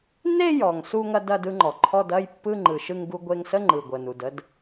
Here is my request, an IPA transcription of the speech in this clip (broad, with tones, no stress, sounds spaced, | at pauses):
n e˥˧ j ɔ˩ ŋ s u˥˧ ŋ ɐ˥˧ d ɐ˥˧ d ɯ˥˧ ŋ͡ǃ ɔ˩ ǃʰ ɔ˥˧ d ɐ˥˧ j pː ɯ˥˧ ŋ͡ǃ ɯ˩ ʃ ɯ˥˧ ŋ ɡ u˥˧ ɡʷ e˥˧ ŋ s ə˥˧ ŋ͡ǃ ɯ˩ ɡʷ ə˩ n u˩ d ə˥˧ d